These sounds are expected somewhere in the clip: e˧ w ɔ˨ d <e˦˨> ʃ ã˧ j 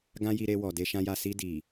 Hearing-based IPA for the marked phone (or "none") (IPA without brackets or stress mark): e˧